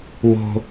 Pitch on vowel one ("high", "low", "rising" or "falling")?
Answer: high